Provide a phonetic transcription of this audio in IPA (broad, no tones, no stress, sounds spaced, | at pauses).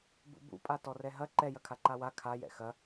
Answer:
b ṵ b ṵ pʼ a t ɔ r ɛ ɦ ɐ ǃ ɛ j ɐ kʰ a ǃ a w a kʰ a j ɛ̰ x ɐ